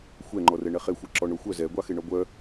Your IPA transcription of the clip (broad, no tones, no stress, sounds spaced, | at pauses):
xʷ ɛ ŋ͡ǃ ɔ r ɛ ɳ ɛ χ e xʷ e ǁ ɔ ɳ o xʷ œ z ɛ ɡʷ ɑ x e ɳ ɔ ɡʷ œ